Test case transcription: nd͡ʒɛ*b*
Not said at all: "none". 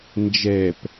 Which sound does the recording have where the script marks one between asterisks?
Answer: p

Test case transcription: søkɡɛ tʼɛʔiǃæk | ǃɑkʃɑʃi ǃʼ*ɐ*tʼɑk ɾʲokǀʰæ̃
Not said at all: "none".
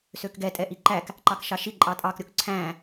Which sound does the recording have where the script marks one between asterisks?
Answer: ɑ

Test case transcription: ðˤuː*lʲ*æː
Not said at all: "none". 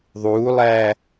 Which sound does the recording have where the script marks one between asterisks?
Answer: lˠ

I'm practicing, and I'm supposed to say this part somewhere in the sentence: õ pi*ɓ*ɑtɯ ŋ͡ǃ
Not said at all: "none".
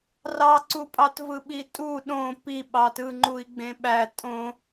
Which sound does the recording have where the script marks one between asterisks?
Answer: ɓ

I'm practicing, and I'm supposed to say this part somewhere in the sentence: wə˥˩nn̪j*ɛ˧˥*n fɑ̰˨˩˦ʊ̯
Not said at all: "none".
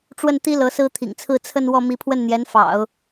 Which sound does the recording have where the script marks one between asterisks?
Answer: ɛ˧˥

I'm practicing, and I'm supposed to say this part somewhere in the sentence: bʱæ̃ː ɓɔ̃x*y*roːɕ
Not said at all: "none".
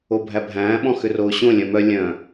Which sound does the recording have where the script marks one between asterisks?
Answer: ʏ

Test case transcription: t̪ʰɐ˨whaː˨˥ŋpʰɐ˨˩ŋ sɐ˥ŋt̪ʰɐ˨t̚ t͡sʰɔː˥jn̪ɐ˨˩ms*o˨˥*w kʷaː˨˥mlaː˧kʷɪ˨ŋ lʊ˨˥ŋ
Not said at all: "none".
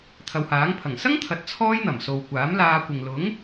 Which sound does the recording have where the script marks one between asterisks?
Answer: o˨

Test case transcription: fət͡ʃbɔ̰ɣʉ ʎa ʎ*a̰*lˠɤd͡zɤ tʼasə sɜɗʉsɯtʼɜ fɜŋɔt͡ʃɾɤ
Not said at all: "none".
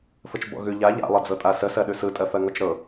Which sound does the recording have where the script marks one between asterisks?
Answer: a̰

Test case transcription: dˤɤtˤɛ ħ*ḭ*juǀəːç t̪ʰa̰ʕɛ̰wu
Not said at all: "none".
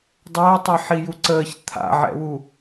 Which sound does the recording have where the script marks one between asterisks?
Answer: i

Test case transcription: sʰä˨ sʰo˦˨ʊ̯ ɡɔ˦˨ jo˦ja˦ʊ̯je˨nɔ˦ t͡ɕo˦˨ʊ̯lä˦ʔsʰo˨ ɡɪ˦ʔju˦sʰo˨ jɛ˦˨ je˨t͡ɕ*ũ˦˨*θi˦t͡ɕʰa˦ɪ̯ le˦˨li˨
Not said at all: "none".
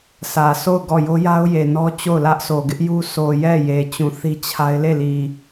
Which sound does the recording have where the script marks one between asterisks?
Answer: ũ˨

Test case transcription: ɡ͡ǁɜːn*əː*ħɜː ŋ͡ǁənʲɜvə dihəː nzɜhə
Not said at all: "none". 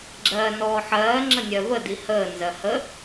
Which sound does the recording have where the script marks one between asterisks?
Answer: ɔː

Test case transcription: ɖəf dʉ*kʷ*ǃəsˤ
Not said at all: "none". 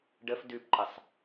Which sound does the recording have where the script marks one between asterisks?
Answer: p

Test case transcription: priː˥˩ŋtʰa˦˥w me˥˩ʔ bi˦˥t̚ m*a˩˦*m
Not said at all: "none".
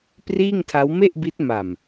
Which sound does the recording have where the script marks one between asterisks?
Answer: a˨˩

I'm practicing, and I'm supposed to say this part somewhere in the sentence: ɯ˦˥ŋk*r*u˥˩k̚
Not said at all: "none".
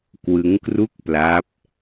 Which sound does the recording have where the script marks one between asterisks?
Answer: r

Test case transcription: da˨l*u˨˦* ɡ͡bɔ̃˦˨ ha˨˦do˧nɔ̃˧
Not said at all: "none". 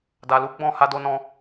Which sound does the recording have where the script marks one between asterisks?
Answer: u˨˦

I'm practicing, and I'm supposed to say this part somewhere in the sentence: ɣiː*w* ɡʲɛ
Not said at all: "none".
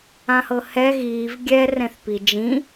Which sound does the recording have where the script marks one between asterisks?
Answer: v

